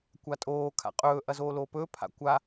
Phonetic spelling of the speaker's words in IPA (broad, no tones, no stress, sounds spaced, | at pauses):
kʷ a tʼ oː kʰ a̰ qʼ ɵː ʔ ɐ z oː l oː p ɵː pʰ a̰ kʷ a